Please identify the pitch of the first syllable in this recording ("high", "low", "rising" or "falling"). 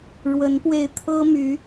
rising